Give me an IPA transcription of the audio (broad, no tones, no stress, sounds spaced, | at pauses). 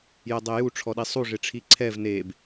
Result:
j ɛ dˤ e j u ʈ͡ʂʰ ɔ ɗ i sˤ u ʐ ɪ ʈ͡ʂʰ i ǀʰ ɛ v n e b